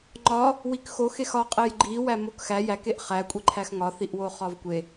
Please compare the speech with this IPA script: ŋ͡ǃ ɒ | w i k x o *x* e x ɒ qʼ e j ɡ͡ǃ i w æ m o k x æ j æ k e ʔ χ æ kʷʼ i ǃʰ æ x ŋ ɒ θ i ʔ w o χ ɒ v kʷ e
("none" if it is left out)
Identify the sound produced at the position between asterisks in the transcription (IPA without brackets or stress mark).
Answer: x